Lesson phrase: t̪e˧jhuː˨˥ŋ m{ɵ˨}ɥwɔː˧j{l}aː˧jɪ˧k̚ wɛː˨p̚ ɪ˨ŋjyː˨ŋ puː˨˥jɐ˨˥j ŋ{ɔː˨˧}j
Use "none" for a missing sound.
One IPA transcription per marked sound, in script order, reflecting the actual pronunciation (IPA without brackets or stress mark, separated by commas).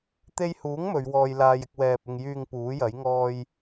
ɵ˨˧, l, ɔː˧